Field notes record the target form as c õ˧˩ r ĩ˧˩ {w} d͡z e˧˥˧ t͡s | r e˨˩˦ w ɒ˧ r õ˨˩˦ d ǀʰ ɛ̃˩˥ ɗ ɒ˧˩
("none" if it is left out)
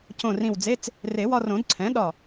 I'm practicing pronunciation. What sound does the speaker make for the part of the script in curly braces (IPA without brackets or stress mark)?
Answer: w